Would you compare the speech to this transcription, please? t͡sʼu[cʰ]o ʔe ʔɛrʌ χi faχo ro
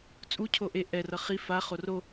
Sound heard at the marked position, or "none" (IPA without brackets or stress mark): cʰ